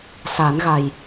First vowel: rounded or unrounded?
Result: unrounded